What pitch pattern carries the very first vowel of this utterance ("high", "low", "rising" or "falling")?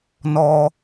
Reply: high